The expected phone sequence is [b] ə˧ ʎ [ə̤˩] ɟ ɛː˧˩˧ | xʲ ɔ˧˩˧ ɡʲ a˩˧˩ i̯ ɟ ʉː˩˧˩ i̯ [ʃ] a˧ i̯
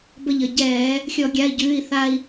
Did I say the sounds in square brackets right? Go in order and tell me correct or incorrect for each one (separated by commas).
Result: correct, incorrect, incorrect